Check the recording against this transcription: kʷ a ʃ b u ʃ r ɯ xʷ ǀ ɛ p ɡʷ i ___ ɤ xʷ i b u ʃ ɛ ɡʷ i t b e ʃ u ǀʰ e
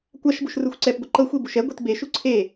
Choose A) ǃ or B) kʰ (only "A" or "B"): A